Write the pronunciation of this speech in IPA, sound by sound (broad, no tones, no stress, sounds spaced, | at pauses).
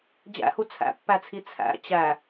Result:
d͡ʑ æ̰ h u t͡sʰ æ̰ pː æ t͡sʰ i t͡sʰ æ̰ t͡ɕ æ